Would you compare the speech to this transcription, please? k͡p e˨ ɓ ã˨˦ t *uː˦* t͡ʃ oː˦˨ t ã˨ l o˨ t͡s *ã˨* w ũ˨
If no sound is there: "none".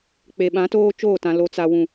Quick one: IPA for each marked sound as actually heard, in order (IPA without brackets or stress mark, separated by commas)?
oː˦, a˨